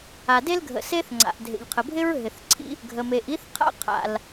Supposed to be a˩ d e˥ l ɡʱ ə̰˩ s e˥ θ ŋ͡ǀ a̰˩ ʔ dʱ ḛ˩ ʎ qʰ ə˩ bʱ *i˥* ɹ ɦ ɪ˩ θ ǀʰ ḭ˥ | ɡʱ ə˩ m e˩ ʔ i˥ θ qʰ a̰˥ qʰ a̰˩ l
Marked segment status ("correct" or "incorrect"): incorrect